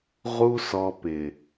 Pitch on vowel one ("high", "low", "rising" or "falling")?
high